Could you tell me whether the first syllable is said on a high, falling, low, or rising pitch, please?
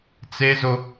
high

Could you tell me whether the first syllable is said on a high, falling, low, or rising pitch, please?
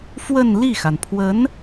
falling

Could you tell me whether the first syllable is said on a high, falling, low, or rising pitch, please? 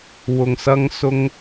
low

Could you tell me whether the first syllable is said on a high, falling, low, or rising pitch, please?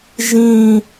falling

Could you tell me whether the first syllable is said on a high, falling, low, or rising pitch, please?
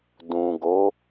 low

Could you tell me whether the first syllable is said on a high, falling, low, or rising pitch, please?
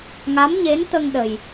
rising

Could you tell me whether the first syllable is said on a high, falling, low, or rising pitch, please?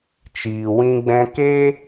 low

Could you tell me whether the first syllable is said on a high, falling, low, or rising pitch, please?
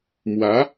rising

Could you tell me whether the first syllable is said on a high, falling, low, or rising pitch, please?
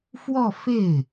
falling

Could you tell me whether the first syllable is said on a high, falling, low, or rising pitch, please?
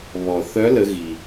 low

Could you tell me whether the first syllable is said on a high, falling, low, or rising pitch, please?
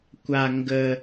high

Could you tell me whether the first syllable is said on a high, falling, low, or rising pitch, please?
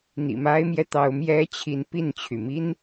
low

